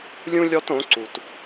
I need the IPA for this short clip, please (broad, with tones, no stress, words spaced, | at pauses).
lʲũ˥ lʲɔ˥tõ˩˥ ǀu˩t